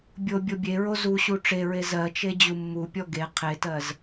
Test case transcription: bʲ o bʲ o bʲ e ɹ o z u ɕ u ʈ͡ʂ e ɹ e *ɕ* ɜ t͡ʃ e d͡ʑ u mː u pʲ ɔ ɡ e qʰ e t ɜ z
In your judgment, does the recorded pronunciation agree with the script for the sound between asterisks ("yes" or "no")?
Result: no